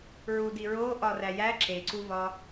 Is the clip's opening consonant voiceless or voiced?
voiced